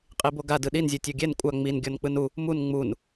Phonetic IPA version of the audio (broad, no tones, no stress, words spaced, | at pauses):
qʼiboɡa dɯɗinzʲo tʲoɡʲɛn kʷʼa ŋ͡min ɡʲɔnk͡pɯnu | mun ŋ͡mun